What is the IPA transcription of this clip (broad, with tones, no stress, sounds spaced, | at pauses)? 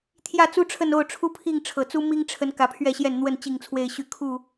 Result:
t̪ʰ j ä˥˨ t͡s u˦ ʈ͡ʂʰ ə˥˨ n o˥˨ ʊ̯ ʈ͡ʂʰ u˦ pʰ i˥˨ ŋ ʈ͡ʂʰ ɤ˨˩ t͡s u˦ m i˦ ŋ ʈ͡ʂʰ ə˨˦ n k ä˨˦ pʰ ɥ ɛ˥˨ ɕ j ɛ˥˨ n n̪ w ə˥˨ n t͡ɕ i˥˨ ŋ t͡sʰ w e˥˨ ɪ̯ ɕ y˦ kʰ u˥˨